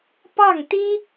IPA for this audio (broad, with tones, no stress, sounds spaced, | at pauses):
p ɑ˥˩ ŋ t̪ i˥